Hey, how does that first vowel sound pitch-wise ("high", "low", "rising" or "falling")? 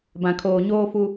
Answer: low